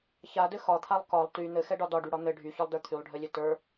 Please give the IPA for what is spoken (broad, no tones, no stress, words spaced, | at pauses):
çadɘ xɒt̪ʰalˠ kɒlˠ ty n̪ɘxɛɖɒ dɒɖyɽɒ n̪ɘ ɖʱyçɒlˠdə˞ t̪ʰylˠɖʱɘlʲɘ tə˞